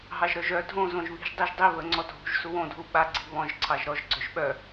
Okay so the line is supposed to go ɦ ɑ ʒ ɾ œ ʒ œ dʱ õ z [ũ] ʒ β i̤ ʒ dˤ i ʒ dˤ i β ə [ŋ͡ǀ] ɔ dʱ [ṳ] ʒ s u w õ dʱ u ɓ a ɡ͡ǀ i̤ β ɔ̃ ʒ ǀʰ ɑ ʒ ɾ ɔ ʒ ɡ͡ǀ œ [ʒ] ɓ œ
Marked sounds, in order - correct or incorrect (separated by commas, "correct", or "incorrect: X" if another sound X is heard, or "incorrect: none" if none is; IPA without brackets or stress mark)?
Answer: incorrect: õ, correct, correct, correct